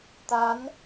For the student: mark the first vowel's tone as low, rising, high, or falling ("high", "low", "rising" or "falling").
rising